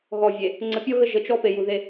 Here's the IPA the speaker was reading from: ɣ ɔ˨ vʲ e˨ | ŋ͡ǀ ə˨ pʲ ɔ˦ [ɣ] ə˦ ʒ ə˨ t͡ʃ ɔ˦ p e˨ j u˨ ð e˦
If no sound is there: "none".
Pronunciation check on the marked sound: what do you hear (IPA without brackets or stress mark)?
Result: ɣ